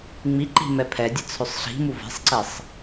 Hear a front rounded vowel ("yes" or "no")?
yes